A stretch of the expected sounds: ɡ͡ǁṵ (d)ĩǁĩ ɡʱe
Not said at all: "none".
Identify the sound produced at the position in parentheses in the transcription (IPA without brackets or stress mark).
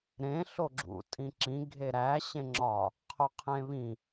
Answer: tʼ